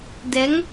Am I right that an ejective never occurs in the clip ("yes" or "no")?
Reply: yes